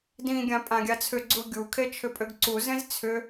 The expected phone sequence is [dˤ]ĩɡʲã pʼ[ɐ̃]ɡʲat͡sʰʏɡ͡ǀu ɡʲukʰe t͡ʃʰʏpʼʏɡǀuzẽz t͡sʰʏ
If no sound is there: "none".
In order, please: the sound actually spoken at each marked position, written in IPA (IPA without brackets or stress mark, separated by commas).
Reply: d, ã